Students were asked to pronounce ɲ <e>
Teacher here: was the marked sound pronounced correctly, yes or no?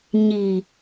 no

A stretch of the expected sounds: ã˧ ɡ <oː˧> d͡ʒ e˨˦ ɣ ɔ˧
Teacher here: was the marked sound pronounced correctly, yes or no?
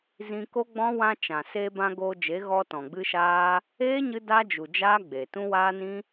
yes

